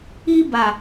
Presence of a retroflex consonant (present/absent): absent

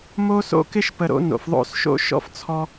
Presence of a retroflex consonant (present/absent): absent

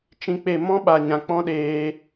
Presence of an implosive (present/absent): present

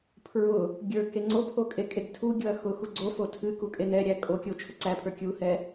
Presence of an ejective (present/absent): present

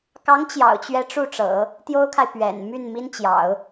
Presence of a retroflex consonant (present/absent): present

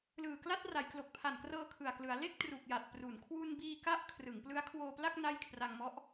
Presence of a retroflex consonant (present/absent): absent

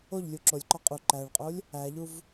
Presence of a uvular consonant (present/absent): present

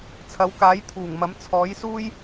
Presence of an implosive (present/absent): absent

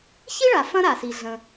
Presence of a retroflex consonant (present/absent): present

